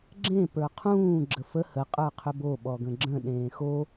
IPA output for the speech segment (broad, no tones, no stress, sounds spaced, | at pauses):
ɡ͡ǁ ẽ p ə˞ qʰ ũː ɡ͡ǁ ə f ə h ə qʼ ə˞ qʰ ʏ b o ɓ ɔ ɡ ə̃ ɡ͡ǁ ə̃ ɗ ẽː x o